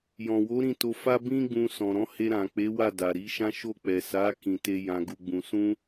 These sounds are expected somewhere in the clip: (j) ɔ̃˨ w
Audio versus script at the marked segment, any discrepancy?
no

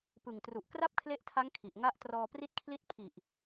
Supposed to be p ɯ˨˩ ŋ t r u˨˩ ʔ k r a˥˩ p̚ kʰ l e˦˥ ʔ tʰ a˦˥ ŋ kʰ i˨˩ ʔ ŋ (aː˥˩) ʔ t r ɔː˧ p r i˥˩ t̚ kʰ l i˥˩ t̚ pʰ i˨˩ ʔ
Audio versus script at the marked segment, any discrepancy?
yes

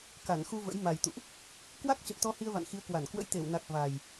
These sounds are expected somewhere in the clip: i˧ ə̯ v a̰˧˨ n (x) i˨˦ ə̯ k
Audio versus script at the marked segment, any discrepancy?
no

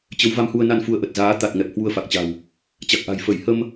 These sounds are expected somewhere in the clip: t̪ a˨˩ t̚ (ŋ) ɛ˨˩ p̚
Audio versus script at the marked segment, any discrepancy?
no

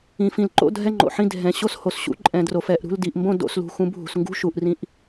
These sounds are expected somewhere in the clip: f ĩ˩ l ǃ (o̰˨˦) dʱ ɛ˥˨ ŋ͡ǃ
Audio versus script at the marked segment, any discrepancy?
yes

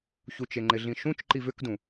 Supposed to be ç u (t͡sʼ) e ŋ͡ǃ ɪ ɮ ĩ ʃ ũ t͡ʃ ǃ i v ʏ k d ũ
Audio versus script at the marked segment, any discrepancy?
yes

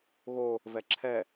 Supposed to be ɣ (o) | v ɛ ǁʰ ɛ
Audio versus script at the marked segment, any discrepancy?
no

